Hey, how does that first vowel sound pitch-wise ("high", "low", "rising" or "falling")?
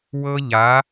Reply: high